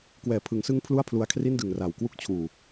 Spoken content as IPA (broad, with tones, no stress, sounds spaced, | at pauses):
k w ɛː˨˩ pʰ ɯ˩˦ ŋ s ɯ˦˥ ŋ pʰ l u˥˩ a̯ pʰ l u˧ a̯ kʰ r i˥˩ n d ɯ˨˩ ŋ r a˨˩ w k w u˥˩ k̚ t͡ɕʰ uː˨˩